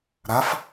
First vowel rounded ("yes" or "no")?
no